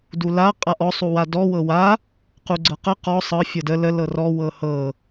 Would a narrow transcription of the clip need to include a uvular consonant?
yes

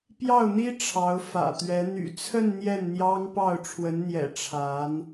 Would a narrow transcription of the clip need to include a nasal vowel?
no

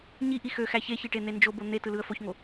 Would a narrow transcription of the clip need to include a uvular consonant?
no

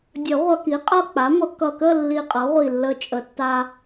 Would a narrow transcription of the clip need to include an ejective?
yes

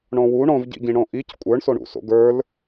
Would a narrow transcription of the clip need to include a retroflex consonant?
yes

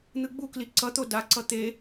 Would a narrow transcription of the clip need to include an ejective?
no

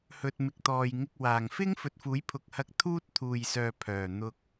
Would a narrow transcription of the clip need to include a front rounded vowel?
yes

